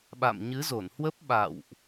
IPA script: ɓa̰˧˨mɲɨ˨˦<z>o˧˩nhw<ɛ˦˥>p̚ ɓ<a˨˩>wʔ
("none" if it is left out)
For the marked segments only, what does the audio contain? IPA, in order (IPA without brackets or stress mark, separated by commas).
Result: z, ə˦˥, a̰˧˨